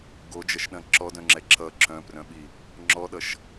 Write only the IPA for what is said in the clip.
ɡ o d͡ʒ ɐ ʃ ɗ ɐ̃ ǁ ɔ d œ̃ ŋ͡ǁ ɛ ǁ ʌ ǁ œ̃ p r œ̃ ɓ i | ŋ͡ǁ ɔ ɗ ʌ ʃ

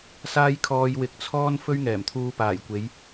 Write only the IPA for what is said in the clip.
s aː˧ j kʰ ɔː˧ j w ɪ˨˥ k̚ t͡sʰ ɔː˥ n f ɵ˥ ɥ ŋ ɛː˨˩ m t̪ʰ uː˧ p aː˨˩ j kʷ e˨˧ j

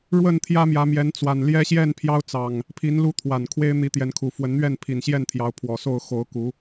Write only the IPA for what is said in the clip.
ɻ w ə˥˨ n t̪ʰ j ä˦ m j ä˨˦ m j ɛ˨˦ n t͡s w a˨˩ n l j ɛ˦ ɕ j ɛ˥˨ n pʰ j ɑ˦ ʊ̯ t͡s ɑ˨˩ ŋ | pʰ i˨˦ n l u˦ t̪ʰ w a˨˩ n kʰ w e˦ ɪ̯ n̪ i˨˦ t̪ j ɛ˨˦ n kʰ u˨˩ f w ə˨˦ n n̪ ɥ ɛ˥˨ n pʰ i˨˩ n ɕ j ɛ˥˨ n t̪ʰ j ɑ˨˦ ʊ̯ pʰ w ɔ˨˩ s o˥˨ ʊ̯ x o˨˦ ʊ̯ k u˨˦

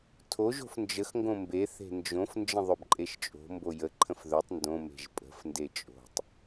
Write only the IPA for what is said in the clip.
tʰ o ʒ o̤ f n d͡ʒ ə x ŋ ɡ õ m b e θ e̤ n d͡ʒ õ f n d͡ʒ ə̃ ðˤ ɵ b ǃʼ e ʃ t͡ʃʼ o̤ m b o j ə ǃʰ ə̃ f ð ɵ tˤ n d õ m e̤ ʒ pʼ ə̤ f n d e t͡ʃʼ o̤ tˤ

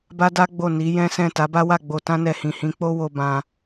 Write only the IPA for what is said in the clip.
b a˦ d a˦ ɡ͡b o˦˨ n i˨˦ j ɛ̃˦ s ɛ̃˦˨ t a˨˦ b a˦ w a˦˨ ɡ͡b o˧ t ã˦ n ɛ˧ h ĩ˨ h ĩ˨˦ k͡p o˦ w o˧ b ã˧

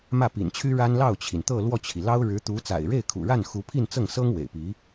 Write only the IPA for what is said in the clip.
m ä˥˩ p ḭ˨˩ n t͡ɕʰ y˥ ɻ a˥ n l ɑ˥˩ ʊ̯ t͡ɕʰ i˩ n t̪ ɤ˥˧ l w ɔ˥˩ t͡ɕʰ i˩ l ɑ˥ ʊ̯ ɻ ɻ̩˧˥ t̪ u˧˥ t͡s a̰˨˩ ɪ̯ ɻ e˥˩ ɪ̯ kʰ ṵ˨˩ ɻ a˥˩ n x u˧˥ pʰ i˥˧ n t͡s ɤ˥˩ ŋ s ɤ˥ ŋ w ḛ˨˩ ɪ̯ p i˧˥

